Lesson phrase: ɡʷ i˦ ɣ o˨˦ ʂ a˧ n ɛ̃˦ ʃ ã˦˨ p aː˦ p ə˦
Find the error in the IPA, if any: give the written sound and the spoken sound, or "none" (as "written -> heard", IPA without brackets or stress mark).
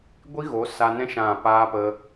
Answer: ʂ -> s